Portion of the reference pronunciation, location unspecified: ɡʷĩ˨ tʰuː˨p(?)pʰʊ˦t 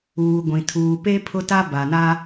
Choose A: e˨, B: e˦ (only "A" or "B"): B